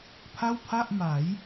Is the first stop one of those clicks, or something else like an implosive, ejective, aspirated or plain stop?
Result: aspirated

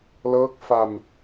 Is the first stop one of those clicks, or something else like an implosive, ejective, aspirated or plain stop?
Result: plain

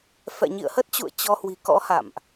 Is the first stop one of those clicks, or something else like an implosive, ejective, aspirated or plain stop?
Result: plain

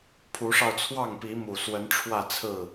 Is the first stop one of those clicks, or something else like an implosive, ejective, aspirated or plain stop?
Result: aspirated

